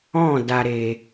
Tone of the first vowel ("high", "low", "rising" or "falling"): falling